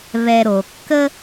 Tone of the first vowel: low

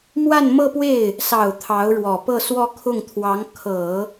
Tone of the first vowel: falling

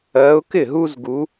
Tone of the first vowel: rising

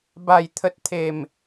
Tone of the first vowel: low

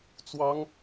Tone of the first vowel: high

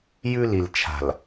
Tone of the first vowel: high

